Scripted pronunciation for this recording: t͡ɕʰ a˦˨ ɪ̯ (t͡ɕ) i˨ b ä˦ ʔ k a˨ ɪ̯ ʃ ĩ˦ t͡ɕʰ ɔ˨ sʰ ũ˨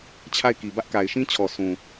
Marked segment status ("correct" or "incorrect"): incorrect